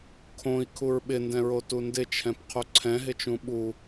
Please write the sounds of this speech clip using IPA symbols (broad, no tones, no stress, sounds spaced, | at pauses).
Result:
kʰ õ i̯ kʰ u ɹ ɓ ɪ n d ɛ̃ ɹ o t u n d ɪ t͡ʃʰ ɛ̃ p qʰ u ǀʰ ɛ̃ ɦ ɪ t͡ʃ ũ ɓ u